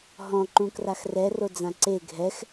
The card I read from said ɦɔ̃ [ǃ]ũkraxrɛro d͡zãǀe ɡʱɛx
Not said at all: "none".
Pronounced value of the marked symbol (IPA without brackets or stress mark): ǃ